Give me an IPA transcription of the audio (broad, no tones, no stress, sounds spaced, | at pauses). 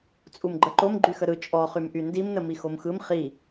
t͡sʼ u m ɡ͡ǃ ə ǃ o m ɡ͡ǃ y x ə ɾ ɯ t͡ʃʼ ɔ χ y m ʔ y n d i m n ə m i x o m x ɯ m χ i